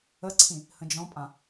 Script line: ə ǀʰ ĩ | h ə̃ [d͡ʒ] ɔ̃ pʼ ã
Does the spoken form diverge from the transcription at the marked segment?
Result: no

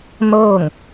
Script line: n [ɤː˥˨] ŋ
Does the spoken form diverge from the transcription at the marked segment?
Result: no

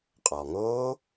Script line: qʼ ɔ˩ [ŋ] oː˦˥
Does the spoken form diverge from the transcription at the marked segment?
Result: no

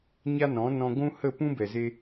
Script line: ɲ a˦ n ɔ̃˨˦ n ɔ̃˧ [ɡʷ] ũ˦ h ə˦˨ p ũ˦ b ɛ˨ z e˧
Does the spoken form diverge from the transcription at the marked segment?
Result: no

